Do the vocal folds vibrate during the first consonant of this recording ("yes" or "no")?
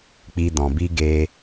no